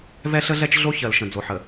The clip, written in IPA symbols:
v ɛ˦ ɬ ə˦ ɮ ɛ˦ t͡ʃ ɮ o˦ ç ɜ˨ l ʃ ə̃˨ d͡z o˨ ħ ə˨

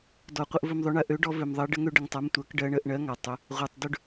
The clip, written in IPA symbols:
d ɔ˨ qʷ ə˦ ʔ v ɵ˦ m ðˤ ø˦ ɳ ɜ˨˥ ʔ ø˨˥ ɖ ɔ˦ v ø˨ m ðˤ ɜ˨˥ ɖ ə˦ ŋ ø˦ ɖ ə˨ ŋ tˤ a˨˥ m tʷ ɜ˨˥ k ɖ ɜ˦ ɳ ə˨˥ ʔ ɳ ɜ˨˥ ŋ a˨ tˤ ɵ˨˥ | ʁʷ ɜ˨ tˤ d ɵ˦ ɖ

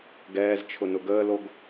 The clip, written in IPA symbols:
ɡ ɛː z t͡ʃʰ ʊ n ʊ ɡ əː l o ɡ

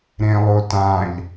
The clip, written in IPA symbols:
ɾ ẽ lˠ o t ã ʎ

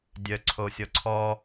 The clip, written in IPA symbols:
dʲ œ ǀʰ o sʲ ɔ ǀʰ ɔ

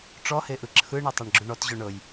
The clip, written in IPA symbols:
ʈ͡ʂ ɔ h e ʔ ɯ ǁʰ ɯ ɳ ɯ tˤ a ɳ ɡ͡ǁ u ɳ ɔ t ʑ o ɳ ɤ j

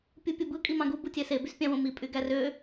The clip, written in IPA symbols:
pʲ u pʲ u b ɯ kʼ i m ɑ̃ ɡ u b u tʲ æ s e b y s pʲ ɑ̃ w õ m i pʼ y ɡ æ r ø

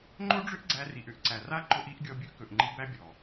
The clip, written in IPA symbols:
ŋ͡ǃ o˦ ɖ͡ʐ ʏ˦ ʔ ɡ͡ǀ æ˧ r i˨ ʔ ʏ˧ ʔ ǀ æ˨ r a˦ ǃ ʊ˧ ʔ i˨˦ ʔ ɡʲ ɔ˧ bʲ ɵ˦ ʔ k ɵ˨ ʔ ŋ͡ǃ i˧ b æ˦ bʲ ɔ˨

